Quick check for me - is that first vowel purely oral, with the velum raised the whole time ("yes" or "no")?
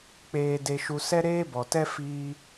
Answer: yes